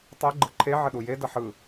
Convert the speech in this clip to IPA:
tˤ ɯ ɡ͡ǃ ɯ ǃʰ e ʕ ə ɗ u j e d ʌ ħ ɯ

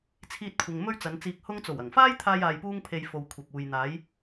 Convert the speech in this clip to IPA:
t͡sʰ iː˧ t̚ kʷʰ ɪ˨ ŋ m ɵ˥ ɥ t͡s ɐ˨˧ n t͡s iː˧ k̚ h ʊ˥ ŋ t͡s o˨˩ w ɐ˨˩ ŋ f aː˥ j t̪ʰ aː˧ j aː˧ j p uː˥ ŋ pʰ e˧ j f o˨ w kʷʰ ɐ˨ p̚ uː˨ j n̪ aː˨˧ j

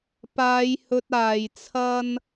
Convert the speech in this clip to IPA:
p aː˨˧ j h ɵ˧ t̚ aː˨ j t͡sʰ ɐ˥ n

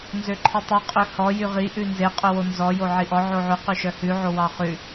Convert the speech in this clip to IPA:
n z ø ǃʰ i tˤ ʉ qʼ ø h ɔ j y ʁ i ʔ ʉ n z e qʼ ɵ w o n z ɔ j o ʕ i ʔ ɔ ʕ o ʕ ʉ q y ʃ œ h ʉ ʕ o w ɑ χ ʉ

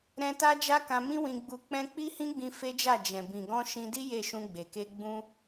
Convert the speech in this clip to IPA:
ɾ ɛ̃˧ t a˦ d͡ʒ a˦ k ã˧ m ĩ˦ w ĩ˧ ɡ͡b u˧ k͡p ɛ̃˦ k͡p i˦ h ĩ˦ ɡ͡b ĩ˧ f e˦ d͡ʒ a˦˨ d͡ʒ ɛ̃˨ b ĩ˨ ɡ ɔ̃˧ ʃ ĩ˧ d i˦ j e˦˨ ʃ ũ˧ ɡ͡b e˨ k e˧ ɡ͡b ũ˦

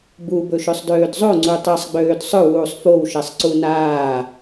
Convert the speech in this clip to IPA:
b u b ɵ ʃ ø sˤ d øː d zˤ o ŋ͡ǀ u tˤ ɐ sˤ ɡ͡b øː d sˤ ɵ w uː sˤ f o w ʃ ɛ sˤ ǀ u n aː

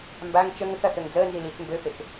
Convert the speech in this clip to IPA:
m b a ŋ t͡ʃ ə ŋ ə k ɐ θ ø ŋ d͡z əː n z i l i t͡s m b ø f e k

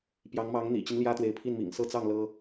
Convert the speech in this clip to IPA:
p j ɑ˧˥ ŋ m ɑ˧˥ ŋ n̪ ḭ˨˩ t͡ɕ i˦ n l j ä˥ t̪ w e˧˥ ɪ̯ pʰ i˥˩ n m ḭ˨˩ ŋ s ɤ˥˧ t͡s ɑ˥˩ ŋ l ɤ˥

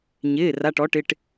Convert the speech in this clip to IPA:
ɲ ɪː˩˧˩ r a˩˧˩ ʈ ɔ˩˥ ʈ ɪ˩˧˩ ʈ

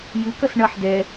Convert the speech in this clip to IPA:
j ɨ k ʌ s ɳ ʌ ħ d ɛ

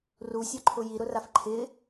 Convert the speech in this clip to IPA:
r u sʲ ɔ ǃʰ ʊ j i ɾ ʊ r a f ǃʰ ɪ

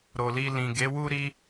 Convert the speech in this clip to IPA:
ɾ o˨ l i˧ l ĩ˨ ɡ e˨˦ w u˦ ɾ i˦

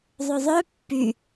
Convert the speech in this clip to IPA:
ðˤ ɵ ðˤ œ pː y

